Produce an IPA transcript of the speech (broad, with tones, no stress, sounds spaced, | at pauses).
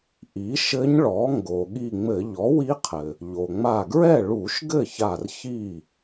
ʔ i˩˥ ʃ ɘ˧˥ ɲ ɭ ɔ˩˥ ŋ ɡ o˩ ɠ i˧˩ ŋ͡m ɘ˧˩˧ ʎ ɔ˩˥ w i˧˥ qʰ ɘ˩ | ʎ o˩ ŋ͡m a˧˩ ɡ ɹ ɛ˥˩ ɭ u˧˩˧ ʃ ɡ ɘ˥˩ ç a˧˩ r ç i˥˩